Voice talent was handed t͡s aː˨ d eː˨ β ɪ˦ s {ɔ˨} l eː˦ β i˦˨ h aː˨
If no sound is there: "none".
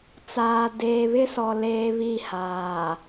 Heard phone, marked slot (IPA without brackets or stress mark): ɔ˨